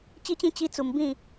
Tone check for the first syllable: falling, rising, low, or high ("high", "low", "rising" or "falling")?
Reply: high